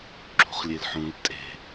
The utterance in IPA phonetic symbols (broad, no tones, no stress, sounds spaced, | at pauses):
ǁ ṳ χ lʲ e l ħ ũ l tʼ e̤